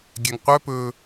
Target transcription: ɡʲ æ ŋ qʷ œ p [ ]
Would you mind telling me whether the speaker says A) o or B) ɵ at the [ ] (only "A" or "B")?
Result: B